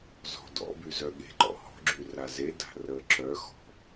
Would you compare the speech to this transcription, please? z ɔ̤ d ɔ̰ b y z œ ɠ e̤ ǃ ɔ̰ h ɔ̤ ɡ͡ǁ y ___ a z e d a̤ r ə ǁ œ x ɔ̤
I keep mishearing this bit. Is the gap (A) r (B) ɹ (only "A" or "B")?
A